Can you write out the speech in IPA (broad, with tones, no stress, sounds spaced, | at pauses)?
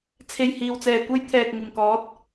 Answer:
t͡sʰ e˨˩ j h iː˨˩ w t͡s ɛː˨˩ kʷ ɐ˧ j t̪ʰ ɛː˨ k̚ ŋ ɪ˨˩ ŋ k ɔː˨˥ t̚